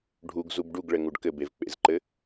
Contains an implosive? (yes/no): no